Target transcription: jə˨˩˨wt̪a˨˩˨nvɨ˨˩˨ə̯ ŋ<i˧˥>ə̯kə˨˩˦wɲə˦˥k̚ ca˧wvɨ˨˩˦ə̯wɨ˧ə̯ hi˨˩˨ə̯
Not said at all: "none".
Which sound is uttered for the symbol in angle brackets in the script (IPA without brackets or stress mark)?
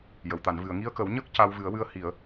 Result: i˧